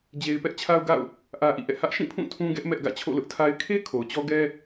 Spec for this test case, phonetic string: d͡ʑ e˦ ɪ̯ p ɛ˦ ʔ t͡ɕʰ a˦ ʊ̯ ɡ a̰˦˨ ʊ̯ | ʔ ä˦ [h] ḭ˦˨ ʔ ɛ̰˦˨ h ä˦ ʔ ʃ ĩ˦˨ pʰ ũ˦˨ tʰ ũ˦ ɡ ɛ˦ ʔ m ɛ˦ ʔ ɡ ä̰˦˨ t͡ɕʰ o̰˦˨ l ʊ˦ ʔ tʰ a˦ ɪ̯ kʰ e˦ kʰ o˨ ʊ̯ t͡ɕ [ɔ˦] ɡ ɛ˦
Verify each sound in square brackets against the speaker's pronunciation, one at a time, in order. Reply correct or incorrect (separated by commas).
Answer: incorrect, correct